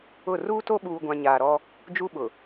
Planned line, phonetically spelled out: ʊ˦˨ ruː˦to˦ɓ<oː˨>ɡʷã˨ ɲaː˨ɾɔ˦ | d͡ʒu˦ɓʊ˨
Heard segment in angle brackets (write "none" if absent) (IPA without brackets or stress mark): uː˨